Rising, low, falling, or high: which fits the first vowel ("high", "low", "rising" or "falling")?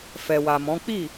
low